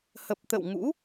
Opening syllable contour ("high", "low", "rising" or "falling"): low